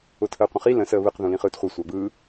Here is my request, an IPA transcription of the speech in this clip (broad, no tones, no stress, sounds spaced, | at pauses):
ʊ tʰ əː qʷ ə̃ χ i l ə̃ s əː β ɯ q ð ũ l ĩ χ ɯː t χʷ ɤ sʷ a b ɯː